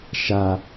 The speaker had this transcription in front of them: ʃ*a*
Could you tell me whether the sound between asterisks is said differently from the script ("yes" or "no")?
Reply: no